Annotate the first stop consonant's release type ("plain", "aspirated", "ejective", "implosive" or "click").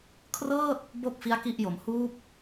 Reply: aspirated